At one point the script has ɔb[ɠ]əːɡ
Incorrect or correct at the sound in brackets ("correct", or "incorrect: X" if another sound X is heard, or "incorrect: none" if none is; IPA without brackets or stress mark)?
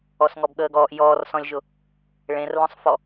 correct